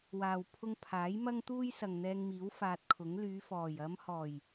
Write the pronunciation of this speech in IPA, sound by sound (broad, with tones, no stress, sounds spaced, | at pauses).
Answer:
w aː˨ w pʰ ʊ˧ ŋ pʰ aː˨˥ j m ɐ˥ ŋ t̪ uː˥ j s ɐ˨ ŋ n̪ ɛː˧ ŋ m iː˨˥ w f aː˧ t̚ kʰ ʊ˨˥ ŋ l yː˨˧ f ɔː˨˩ j ɐ˨˧ m h ɔː˨˩ j